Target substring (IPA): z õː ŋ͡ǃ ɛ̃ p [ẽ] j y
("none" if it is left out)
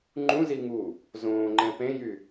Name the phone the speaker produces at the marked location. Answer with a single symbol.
ẽ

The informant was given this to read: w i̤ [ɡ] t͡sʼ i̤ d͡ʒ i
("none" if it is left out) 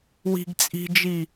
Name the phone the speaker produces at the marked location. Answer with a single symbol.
ɡ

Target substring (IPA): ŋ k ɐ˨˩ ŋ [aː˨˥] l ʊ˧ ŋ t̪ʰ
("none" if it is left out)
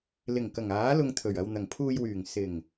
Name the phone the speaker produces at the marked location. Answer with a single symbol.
aː˨˥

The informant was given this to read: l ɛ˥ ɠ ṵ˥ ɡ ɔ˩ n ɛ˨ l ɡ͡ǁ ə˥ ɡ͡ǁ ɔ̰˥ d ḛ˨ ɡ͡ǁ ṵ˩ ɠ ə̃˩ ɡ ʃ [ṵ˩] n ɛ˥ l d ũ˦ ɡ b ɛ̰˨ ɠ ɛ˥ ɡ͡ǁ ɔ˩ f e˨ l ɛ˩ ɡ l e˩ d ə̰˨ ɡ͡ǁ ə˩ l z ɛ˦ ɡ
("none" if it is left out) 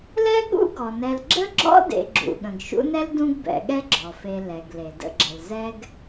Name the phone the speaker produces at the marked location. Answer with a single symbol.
ṵ˦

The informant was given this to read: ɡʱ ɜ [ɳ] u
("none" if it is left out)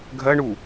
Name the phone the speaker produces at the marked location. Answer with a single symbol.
ɳ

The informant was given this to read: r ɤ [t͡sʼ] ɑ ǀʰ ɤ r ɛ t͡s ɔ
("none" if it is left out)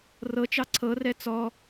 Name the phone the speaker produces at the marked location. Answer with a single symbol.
t͡ʃ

